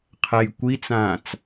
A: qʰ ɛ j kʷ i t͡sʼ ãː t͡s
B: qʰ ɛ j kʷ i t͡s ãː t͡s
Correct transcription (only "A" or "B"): B